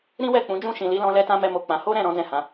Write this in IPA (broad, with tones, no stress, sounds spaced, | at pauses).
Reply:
ɾ ĩ˦ w ɛ˦˨ k͡p ũ˨˦ d͡ʒ ũ˦˨ ʃ ĩ˨ l i˨˦ l ɔ̃˧ l ɛ˦ t ã˦ m ɛ˦ m o˦˨ k͡p ã˧ h o˦ ɾ ɛ̃˦˨ ɾ ɔ̃˨˦ d ɛ̃˦˨ h ã˨˦